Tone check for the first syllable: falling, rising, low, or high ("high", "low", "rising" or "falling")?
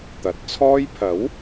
rising